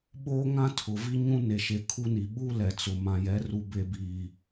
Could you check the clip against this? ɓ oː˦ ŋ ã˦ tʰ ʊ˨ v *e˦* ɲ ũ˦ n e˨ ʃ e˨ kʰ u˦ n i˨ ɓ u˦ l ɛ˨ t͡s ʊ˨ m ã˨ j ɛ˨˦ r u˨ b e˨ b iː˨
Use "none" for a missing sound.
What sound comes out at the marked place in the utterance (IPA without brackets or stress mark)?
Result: i˦